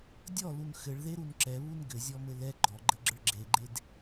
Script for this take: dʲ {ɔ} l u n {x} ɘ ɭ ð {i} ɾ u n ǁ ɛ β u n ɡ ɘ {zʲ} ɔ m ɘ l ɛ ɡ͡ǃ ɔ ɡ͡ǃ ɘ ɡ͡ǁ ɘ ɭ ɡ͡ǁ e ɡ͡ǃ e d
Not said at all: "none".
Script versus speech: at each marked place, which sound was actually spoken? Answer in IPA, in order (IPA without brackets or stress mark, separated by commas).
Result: ɔ, x, e, zʲ